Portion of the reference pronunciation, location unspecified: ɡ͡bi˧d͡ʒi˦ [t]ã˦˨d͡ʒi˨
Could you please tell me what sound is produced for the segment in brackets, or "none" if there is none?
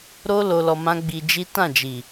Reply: t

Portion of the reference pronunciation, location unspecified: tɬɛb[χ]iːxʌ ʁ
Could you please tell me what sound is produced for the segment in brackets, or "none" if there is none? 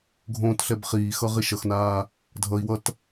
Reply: χ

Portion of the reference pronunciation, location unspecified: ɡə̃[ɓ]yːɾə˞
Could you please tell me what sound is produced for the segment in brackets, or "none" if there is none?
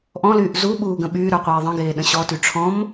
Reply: ɓ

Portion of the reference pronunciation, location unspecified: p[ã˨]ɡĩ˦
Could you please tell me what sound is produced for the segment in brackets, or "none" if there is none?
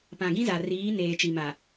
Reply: ã˨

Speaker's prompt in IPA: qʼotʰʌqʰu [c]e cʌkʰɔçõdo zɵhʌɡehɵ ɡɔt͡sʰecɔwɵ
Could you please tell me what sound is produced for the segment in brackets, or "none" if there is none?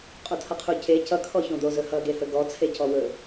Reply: c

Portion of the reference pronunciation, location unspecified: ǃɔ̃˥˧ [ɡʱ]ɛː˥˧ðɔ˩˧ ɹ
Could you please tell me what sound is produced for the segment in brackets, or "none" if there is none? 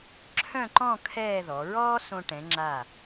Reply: kʰ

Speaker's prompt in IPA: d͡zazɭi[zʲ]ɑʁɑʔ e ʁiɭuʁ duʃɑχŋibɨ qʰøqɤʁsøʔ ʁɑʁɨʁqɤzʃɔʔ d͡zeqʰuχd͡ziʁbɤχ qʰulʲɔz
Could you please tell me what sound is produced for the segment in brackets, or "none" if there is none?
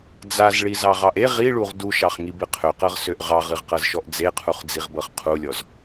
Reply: z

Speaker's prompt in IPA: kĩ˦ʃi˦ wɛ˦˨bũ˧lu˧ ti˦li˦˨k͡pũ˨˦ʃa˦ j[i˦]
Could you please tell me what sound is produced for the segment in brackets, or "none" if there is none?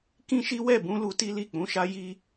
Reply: i˦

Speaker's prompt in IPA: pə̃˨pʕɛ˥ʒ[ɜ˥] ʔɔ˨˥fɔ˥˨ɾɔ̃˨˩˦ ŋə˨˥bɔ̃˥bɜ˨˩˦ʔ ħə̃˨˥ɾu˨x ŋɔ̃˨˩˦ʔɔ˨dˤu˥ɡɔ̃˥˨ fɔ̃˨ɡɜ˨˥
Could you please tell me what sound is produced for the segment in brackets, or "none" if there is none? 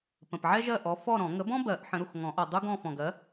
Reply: ɜ˥˨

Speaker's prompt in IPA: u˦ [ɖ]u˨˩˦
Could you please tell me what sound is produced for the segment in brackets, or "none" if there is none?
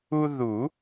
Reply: ð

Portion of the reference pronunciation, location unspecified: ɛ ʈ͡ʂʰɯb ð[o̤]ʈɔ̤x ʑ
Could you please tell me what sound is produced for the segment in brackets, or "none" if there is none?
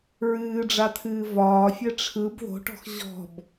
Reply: o̤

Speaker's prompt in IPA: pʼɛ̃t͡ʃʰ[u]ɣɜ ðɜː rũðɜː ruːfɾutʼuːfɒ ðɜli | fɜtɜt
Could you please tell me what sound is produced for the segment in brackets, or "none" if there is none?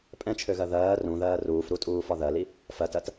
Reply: ø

